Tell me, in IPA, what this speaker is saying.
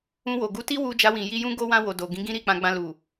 ũ˧ w o˨ ɡ u˨˦ t i˦ w u˧ d͡ʒ a˧ w ĩ˨ j i˧ j ũ˦ ɡ o˦ w ã˦ w o˧ d o˨ ɡ ĩ˨˦ ɡ ĩ˦ ɾ i˦˨ k͡p ã˧ ɡ͡b ã˧ l u˨

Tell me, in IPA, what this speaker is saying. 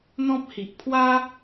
n̪ ɔ̃˦ p̚ h i˨ ʔ pʰ w a˦

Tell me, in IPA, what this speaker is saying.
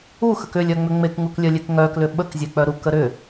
u x ə k ʏ lʲ œ ŋ͡m ʏ ŋ͡m e k ŋ u k lʲ œ lʲ e k ŋ œ k l ʏ ɓ ə k zʲ e k͡p œ ɾ u k ə ɾ ʏ

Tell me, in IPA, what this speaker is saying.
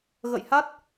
ɣ ə̰˧˨ j h a˦˥ t̚

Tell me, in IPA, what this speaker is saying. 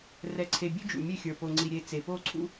r ɛ˨ ǀʰ e˨ bʲ ʉ˦ d͡ʒ ṵ˨ mʲ e˦˨ xʲ ə˞˨ p o˨ ŋ͡ǀ i˨ ɾʲ e˨ t͡s e˨ p o˦˨ ǀʰ ṵ˦

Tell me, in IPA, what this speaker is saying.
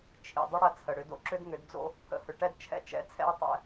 t͡ʃʰ ḭ˨ dˤ ə˦ ɽ ɐ˦ t͡sʰ ə˨ ɽ ʏ˦ d o̰˦ ǁ ʏ˦ d ŋ ʏ˨˦ d d͡z o̰˦ | pʰ ə̰˨ h ʏ˨ ʈ ɛ˦ d t͡ʃʰ ɛ̰˦ t͡ʃ ɛ̰˨˦ t͡sʰ ɛ̰˦ u̯ tˤ ɛ̰˦

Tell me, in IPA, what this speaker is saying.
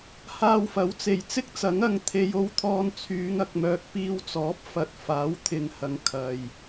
h aː˧ w f ɐ˨˥ w t͡s e˨˩ j t͡s ɪ˥ k̚ t͡s ɐ˨˥ ŋ ɐ˨˧ ŋ t̪ʰ e˨˧ j o˧ w t̪ʰ ɔː˧ n t͡sʰ yː˨˧ ŋ ɐ˨ k̚ m œː˧ k̚ p iː˧ w t͡s ɔː˨˥ p̚ f ɐ˨˥ t̚ f aː˨˥ w t̪ʰ ɪ˨˧ ŋ h ɐ˨ ŋ kʰ ɐ˨ j

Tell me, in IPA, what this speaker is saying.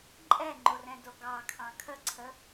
ǃʼ ɛ ŋ͡ǃ o r ɛ̃ d o ɡ ɑ kʰ ɑ̃ kʰ ə ǀʰ ə

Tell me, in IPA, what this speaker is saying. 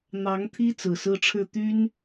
n̪ ɑ˧˥ ŋ t̪ʰ i˥ t͡s ɹ̩˨˩ s ɹ̩˥ ʈ͡ʂʰ ɻ̩˥˩ t̪ y˥ n

